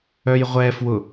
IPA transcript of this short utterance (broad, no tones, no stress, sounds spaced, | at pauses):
œ j ʁʷ ɛ f w ʊ